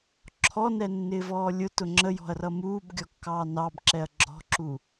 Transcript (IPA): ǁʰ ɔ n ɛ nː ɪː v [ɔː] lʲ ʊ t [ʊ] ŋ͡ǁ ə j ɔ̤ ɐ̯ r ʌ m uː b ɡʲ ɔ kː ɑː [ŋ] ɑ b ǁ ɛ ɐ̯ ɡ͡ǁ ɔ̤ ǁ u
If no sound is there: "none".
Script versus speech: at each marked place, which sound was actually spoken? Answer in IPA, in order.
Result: ɔː, ʊ, n

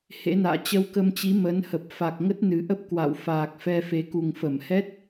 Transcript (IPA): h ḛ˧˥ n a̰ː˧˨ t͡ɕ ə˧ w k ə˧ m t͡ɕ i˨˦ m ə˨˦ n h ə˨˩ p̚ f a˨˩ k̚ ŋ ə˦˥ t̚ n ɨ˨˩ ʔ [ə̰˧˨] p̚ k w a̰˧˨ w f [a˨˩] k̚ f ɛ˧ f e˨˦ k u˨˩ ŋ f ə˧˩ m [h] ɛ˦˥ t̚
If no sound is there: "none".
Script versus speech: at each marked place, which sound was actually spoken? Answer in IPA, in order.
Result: ə˦˥, aː˨˩, h

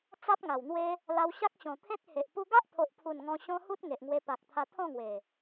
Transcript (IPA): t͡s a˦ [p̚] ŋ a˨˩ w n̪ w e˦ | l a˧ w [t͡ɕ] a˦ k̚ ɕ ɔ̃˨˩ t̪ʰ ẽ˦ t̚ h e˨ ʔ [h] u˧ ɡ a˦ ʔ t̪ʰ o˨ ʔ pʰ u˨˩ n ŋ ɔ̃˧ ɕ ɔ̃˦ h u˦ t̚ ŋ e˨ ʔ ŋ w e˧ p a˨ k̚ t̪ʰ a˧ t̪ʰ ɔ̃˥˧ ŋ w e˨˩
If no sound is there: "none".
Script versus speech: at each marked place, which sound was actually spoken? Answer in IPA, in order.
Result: p̚, ɕ, p

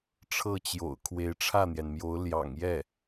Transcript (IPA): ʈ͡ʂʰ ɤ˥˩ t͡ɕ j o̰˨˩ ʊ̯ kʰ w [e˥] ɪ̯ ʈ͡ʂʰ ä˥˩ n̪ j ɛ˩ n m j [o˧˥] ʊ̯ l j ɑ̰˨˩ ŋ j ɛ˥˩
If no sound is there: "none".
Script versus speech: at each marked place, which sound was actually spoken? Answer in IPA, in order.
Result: e˧˥, o˧˥

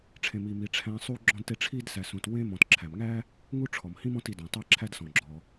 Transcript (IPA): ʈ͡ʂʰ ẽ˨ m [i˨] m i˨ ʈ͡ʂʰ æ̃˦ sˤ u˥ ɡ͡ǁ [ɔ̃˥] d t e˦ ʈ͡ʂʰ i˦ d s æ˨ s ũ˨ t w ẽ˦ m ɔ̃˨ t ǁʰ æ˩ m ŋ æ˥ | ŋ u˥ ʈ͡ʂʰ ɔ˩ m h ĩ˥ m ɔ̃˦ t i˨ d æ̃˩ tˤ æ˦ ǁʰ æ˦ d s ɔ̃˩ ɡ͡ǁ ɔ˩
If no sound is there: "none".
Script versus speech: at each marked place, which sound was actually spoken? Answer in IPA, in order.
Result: i˨, ɔ̃˦

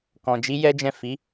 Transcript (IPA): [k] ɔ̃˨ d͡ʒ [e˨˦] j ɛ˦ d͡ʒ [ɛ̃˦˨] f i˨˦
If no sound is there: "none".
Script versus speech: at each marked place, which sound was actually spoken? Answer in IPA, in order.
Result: k, i˨˦, ɛ̃˦˨

